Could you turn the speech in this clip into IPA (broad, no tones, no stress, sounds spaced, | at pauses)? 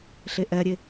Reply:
ɬ e ʔ ɛ ɾʲ e